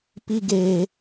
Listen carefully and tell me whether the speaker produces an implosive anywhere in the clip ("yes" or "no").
no